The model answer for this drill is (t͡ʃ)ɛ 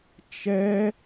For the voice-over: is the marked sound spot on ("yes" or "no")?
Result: yes